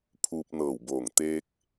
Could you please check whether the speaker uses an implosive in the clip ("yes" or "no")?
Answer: no